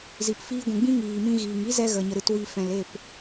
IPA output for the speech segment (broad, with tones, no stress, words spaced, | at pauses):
zi˨pfiː˧ɡʷũ˨ɡ͡bĩ˦ ŋiː˨mĩ˧ɣiː˨ŋi˦ zɛ˦ɣə˨ɲə˨ ɾɨ˨twi˨ fɛ̃˨le˦˨p